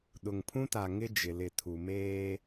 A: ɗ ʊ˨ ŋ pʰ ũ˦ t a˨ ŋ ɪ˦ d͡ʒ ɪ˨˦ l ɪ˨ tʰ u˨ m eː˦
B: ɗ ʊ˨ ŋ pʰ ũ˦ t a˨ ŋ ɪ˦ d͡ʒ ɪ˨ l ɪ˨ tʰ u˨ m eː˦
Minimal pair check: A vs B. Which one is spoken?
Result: B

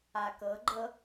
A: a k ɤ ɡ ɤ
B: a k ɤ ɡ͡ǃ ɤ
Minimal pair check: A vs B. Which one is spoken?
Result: B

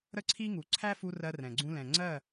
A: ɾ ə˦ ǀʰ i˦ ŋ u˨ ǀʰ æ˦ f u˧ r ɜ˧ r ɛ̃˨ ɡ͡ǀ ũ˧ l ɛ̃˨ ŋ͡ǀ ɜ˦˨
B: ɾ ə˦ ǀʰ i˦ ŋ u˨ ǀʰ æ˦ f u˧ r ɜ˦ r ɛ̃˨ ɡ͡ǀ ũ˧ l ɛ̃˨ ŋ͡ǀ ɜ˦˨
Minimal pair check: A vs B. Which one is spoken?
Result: A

